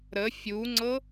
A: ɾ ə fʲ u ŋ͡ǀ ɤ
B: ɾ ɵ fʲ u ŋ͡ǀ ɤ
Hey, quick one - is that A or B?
A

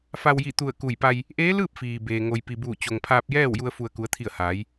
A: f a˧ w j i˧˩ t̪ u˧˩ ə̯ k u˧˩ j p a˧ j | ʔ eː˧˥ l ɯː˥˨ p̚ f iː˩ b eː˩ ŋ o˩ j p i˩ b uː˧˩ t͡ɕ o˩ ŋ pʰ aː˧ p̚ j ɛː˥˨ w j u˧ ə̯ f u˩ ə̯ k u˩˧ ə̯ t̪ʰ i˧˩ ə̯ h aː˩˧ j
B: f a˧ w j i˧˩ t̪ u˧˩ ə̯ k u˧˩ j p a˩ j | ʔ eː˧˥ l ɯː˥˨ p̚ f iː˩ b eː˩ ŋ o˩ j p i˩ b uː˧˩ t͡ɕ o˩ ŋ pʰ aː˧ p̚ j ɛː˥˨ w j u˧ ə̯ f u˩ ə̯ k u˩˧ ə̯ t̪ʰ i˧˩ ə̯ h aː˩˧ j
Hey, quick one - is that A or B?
A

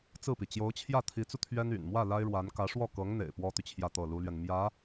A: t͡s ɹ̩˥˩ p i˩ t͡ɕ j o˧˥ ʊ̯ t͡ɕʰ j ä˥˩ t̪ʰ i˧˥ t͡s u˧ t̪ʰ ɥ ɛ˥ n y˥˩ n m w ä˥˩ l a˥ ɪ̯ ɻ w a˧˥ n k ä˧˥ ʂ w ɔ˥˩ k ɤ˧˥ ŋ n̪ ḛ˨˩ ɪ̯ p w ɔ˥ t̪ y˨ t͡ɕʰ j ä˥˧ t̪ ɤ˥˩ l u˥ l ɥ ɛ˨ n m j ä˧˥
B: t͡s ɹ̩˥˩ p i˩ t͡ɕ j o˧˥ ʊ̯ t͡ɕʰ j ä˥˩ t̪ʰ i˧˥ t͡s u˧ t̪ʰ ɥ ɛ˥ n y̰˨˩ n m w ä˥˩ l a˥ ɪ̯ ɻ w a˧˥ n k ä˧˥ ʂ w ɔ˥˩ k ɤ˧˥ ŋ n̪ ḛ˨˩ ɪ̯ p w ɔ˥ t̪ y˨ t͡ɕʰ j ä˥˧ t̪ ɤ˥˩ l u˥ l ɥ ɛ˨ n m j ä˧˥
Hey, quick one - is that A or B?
B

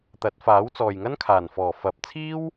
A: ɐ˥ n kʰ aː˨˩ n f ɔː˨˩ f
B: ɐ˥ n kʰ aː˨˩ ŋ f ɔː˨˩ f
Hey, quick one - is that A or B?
A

